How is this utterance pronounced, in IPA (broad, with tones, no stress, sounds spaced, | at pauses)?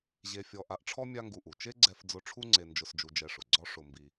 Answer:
ʑ e˧ fʲ ɔ˧ ʔ a˧ ʔ ʈ͡ʂʰ ɔ˥ mʲ a˥ ŋ ɡ u˧ ʔ u˩ t͡ʃ e˥ ɡ͡ǀ ɛ˧ f d͡z ʊ˧ ʈ͡ʂʰ u˥ ŋ͡ǀ e˧ n d͡ʒ ʊ˧ s d͡ʒ u˧ d͡ʒ ɛ˧ ʂ ʊ˩ ɡ͡ǀ ɔ˥ ʂ ʊ˧ m b i˧